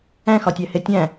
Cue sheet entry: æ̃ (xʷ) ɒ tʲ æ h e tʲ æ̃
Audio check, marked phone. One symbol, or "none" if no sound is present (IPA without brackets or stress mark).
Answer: x